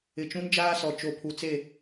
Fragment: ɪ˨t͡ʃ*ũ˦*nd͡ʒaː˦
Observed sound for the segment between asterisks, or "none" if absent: ũ˦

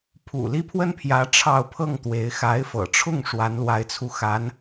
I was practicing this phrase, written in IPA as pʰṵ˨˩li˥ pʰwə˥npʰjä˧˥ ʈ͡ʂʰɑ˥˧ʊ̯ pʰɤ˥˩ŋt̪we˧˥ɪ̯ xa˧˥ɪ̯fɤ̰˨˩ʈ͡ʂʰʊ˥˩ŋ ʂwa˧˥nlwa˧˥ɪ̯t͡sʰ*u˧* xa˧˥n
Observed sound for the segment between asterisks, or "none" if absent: u˧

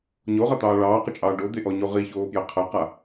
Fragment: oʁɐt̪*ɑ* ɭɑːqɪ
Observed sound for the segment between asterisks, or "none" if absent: ɑː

